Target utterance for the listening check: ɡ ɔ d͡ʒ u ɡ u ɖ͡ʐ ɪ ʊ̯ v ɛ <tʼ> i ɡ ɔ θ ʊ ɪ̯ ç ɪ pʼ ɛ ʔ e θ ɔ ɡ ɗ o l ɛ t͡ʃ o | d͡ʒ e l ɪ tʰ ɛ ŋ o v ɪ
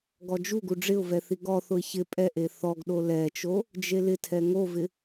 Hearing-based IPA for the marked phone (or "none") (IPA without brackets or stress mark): θ